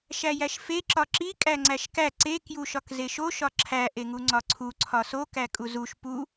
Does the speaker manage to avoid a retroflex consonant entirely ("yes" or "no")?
yes